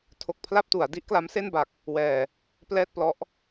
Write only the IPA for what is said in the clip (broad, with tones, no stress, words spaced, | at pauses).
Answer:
tʰo˥˩k̚ pʰla˥˩p̚tu˩˦a̯ di˦˥ʔkla˦˥mse˥˩nba˨˩k̚ | wɛː˧ | plɛː˥˩t̚plɔ˦˥ʔ